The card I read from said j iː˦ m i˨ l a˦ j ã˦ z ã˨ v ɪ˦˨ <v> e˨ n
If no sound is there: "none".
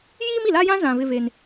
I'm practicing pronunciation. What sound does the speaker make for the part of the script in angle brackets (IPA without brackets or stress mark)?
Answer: v